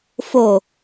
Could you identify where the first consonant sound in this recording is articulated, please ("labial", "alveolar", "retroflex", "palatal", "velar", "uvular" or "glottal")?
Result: labial